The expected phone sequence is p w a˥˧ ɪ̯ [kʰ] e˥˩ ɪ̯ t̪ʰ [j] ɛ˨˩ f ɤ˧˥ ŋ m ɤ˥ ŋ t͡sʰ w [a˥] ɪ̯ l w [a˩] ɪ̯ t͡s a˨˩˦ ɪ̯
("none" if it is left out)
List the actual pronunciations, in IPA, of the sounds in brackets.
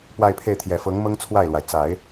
pʰ, j, a˥˩, a˩

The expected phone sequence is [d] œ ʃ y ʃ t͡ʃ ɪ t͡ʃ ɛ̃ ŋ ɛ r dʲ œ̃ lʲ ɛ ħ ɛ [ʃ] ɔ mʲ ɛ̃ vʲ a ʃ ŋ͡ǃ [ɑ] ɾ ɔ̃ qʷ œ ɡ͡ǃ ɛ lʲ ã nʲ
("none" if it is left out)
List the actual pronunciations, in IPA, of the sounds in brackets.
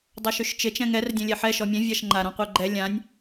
dˤ, ʃ, a

